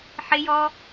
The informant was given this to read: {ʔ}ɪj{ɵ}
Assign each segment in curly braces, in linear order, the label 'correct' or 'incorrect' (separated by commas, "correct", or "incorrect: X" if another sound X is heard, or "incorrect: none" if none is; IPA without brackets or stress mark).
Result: incorrect: ħ, incorrect: ɔ